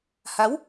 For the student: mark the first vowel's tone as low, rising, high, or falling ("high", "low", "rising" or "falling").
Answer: rising